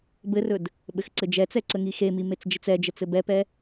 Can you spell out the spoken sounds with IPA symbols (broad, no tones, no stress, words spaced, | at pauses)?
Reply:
bɘrɵd | ɓɘxǀɘd͡ʒɛt͡sɛ ǀəŋixemi met͡sd͡ʒət͡sɛd͡ʒə t͡sɘbɛpɛ